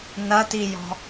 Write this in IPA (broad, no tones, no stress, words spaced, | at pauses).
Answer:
nɐtijɔ̤